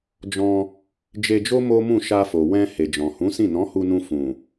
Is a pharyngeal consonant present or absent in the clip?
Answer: absent